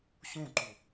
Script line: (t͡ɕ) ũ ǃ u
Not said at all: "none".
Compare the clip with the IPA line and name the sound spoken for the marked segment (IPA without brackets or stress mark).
ɕ